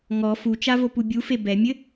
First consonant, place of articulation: velar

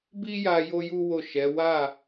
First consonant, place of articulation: labial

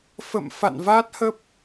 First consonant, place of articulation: labial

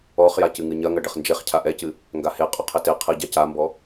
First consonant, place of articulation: uvular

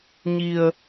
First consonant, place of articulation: palatal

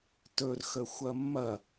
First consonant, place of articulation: alveolar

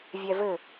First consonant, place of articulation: labial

